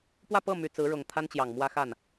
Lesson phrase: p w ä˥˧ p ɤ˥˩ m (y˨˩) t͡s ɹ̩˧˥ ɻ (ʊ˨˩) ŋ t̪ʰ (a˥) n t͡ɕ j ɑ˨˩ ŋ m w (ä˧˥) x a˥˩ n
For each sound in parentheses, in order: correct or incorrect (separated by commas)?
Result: correct, correct, correct, incorrect